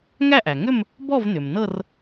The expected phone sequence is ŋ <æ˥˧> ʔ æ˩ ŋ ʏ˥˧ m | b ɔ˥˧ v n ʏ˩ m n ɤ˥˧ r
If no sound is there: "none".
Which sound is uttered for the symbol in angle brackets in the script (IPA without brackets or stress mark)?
æ˥˧